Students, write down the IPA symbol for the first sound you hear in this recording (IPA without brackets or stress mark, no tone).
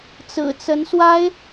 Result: t͡s